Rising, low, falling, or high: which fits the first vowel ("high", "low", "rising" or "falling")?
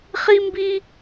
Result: high